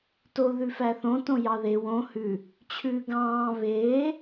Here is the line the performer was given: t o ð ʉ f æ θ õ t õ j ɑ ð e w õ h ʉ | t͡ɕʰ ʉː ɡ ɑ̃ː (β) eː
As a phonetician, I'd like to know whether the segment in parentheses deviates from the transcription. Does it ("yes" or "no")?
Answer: no